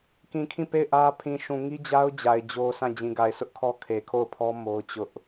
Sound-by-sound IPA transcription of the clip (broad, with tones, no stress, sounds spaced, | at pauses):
k ĩ˨ kʰ ĩ˦˨ p e˦˨ ɪ̯ ʔ ä˦ pʰ ĩ˨ ʃ ũ˨ ŋ i˦ d͡ʑ a˦ ʊ̯ d͡ʑ a˨ ɪ̯ d͡ʑ o˦ sʰ ã˦˨ d͡ʑ ĩ˨ ɡ a˨ ɪ̯ sʰ ʊ˦ ʔ kʰ ɔ˦ kʰ e˨ kʰ o˦˨ ʊ̯ pʰ ɔ˦ m o˦ ʊ̯ t͡ɕ ʊ˦ ʔ